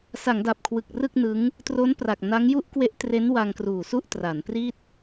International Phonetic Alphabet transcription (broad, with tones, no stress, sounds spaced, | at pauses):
s a˩˦ ŋ d a˨˩ p̚ kʰ w ɯ˨˩ k̚ r ɯ˥˩ k̚ n ɯ˦˥ ŋ | t r o˦˥ n p r a˨˩ k̚ n a˦˥ ŋ j u˥˩ ʔ k w e˦˥ ʔ t r e˦˥ n w a˧ ŋ k r uː˨˩ s u˥˩ ʔ t r a˩˦ n p r i˥˩ t̚